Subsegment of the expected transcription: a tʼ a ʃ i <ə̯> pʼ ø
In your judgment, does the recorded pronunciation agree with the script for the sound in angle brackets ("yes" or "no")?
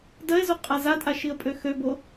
yes